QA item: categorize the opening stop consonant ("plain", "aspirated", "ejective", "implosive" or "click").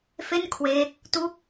aspirated